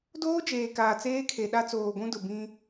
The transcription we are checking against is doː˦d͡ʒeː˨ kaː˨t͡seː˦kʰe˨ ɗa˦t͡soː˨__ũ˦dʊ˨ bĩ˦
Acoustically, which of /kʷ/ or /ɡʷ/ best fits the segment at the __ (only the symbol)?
ɡʷ